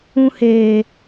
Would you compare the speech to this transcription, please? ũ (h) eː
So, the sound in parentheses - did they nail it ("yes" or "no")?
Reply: yes